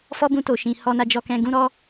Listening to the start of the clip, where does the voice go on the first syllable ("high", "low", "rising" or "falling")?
high